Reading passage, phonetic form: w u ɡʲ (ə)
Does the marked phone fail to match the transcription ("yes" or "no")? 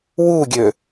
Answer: yes